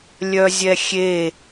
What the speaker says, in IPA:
lʲœzʲɛxʲe

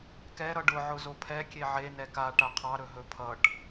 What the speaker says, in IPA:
kɛ ɾʌɖʊ ʕʊzopʰɛ kʲeʕe nɛka ʈaqʰɑɾɵɦɵ pʰʌʈ

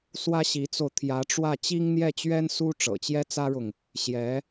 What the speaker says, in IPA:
swä˥ɕi˧˥t͡so˧ʊ̯ t̪ʰjä˧˥ʈ͡ʂwä˥˩ t͡ɕi˥ŋn̪jɛ˥˩t͡ɕɥɛ˥n su˥ ʈ͡ʂɤ̰˨˩t͡ɕjɛ˥t͡sä˥ɻʊ˨ŋ | ɕjɛ˧˥

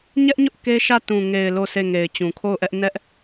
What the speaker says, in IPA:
ɲɛ˦ʔɲʊ˦ʔ ke˦ʃä˦˨ tũ˨ŋe˨ɪ̯ lo˦˨se˦˨ŋe˨ɪ̯ t͡ɕũ˨kʰo˦˨ʊ̯ʔɛ˦ʔ nɛ˦ʔ

